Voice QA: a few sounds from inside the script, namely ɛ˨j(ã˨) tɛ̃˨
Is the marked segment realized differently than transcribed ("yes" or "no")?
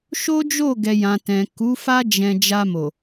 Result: no